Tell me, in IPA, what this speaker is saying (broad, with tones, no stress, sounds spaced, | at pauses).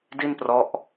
d i˥˩ n p r ɔ˦˥ ʔ